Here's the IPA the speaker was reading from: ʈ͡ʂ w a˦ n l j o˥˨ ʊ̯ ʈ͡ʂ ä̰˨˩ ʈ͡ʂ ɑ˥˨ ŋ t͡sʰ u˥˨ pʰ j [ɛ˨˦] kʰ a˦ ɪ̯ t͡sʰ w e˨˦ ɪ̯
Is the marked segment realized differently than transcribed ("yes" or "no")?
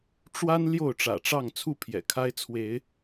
yes